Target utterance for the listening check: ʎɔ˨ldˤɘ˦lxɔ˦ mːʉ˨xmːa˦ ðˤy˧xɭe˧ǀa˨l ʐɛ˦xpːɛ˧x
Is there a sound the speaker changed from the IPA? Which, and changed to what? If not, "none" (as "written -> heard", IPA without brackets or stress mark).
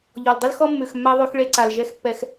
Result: ʐ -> ʒ